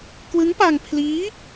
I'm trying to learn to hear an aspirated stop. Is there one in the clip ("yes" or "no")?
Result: yes